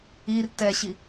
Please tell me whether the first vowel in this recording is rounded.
no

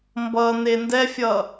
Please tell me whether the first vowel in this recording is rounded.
no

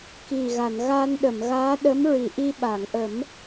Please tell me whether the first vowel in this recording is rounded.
no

